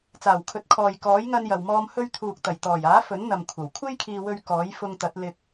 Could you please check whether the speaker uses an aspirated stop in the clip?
yes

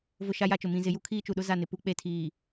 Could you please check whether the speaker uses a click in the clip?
no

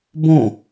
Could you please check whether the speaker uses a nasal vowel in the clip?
yes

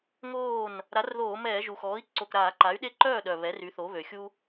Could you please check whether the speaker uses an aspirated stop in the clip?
no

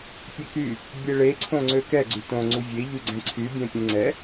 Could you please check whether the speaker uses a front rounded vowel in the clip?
yes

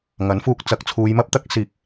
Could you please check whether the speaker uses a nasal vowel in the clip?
no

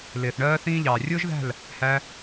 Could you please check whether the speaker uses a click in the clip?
no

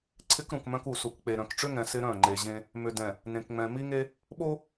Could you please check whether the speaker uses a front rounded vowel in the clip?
yes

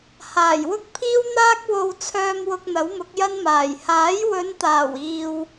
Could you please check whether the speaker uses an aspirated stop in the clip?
yes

